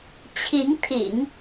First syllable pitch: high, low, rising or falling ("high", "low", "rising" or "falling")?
rising